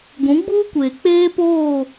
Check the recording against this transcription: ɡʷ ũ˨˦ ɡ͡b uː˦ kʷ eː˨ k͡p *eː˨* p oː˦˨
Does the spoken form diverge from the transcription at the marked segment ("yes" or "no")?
yes